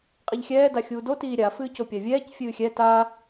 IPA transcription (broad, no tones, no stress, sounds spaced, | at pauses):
qʼ i ʎ xʲ ɛː d a xʲ uː d o t iː ɾʲ a f ɨː c o pʲ a vʲ ɛː c fʲ ɨː xʲ ɛ t a